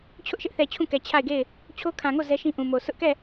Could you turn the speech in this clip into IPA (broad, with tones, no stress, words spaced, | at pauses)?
t͡ɕʰʊ˦ʔʃɪ˦ʔθɛ˨ t͡ɕʰũ˦˨kɛ˨ t͡ɕʰa˦˨ɪ̯ɡe˦˨ɪ̯ | t͡ɕʰo˦kʰã˨ŋo˦˨ zɛ˦ʃĩ˦ ʔũ˨mo˨ sʰʊ˦ʔkɛ˦˨